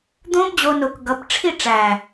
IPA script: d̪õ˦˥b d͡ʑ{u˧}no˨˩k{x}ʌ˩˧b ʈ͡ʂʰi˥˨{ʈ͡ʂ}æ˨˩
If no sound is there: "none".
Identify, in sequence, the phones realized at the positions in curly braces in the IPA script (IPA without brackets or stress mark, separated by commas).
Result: o˧, ɡ, ʈ͡ʂ